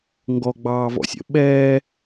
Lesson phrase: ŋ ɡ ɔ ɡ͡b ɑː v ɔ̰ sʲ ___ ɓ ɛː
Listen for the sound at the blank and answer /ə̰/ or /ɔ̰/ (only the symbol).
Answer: ə̰